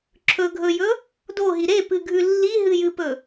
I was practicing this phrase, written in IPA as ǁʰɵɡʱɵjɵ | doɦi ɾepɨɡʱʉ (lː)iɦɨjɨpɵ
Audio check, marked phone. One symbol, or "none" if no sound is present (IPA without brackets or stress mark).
lː